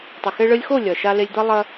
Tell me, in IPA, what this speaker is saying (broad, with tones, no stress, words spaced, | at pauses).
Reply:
tˤɐ˨xe˧ ɭɘ˧lʲxo˦˨ lʲɐ˨ ʃa˧le˧lʲd̪ɐ˦ lˠɐ˦